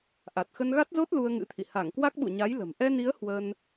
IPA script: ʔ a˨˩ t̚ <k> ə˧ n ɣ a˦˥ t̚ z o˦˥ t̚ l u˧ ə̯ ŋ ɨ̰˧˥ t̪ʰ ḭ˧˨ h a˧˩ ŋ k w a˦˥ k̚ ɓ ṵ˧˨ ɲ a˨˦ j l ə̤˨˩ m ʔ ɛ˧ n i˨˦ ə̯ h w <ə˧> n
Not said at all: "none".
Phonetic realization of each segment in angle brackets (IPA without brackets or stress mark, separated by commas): x, ə˧